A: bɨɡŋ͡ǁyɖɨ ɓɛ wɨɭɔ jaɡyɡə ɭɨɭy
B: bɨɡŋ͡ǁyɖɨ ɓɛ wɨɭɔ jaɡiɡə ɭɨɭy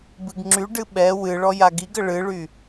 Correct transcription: B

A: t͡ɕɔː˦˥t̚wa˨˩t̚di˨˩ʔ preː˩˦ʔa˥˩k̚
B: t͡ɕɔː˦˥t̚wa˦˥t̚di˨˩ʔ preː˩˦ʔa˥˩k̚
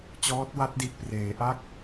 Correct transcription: B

